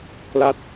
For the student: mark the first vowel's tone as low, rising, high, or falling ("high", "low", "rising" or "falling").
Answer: falling